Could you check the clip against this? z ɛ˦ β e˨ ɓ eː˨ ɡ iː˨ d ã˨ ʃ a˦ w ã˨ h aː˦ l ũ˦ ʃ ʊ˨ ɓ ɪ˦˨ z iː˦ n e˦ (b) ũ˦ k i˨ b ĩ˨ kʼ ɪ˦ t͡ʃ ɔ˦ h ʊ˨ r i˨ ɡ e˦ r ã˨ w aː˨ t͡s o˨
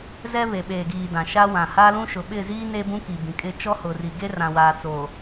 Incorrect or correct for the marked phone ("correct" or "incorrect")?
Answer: correct